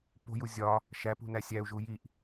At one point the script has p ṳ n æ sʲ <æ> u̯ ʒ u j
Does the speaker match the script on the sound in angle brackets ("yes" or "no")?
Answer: yes